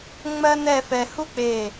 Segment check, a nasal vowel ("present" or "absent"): absent